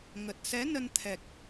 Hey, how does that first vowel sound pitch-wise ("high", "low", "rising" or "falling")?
low